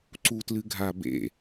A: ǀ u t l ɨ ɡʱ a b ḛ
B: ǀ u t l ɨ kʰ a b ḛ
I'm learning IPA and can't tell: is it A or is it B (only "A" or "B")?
A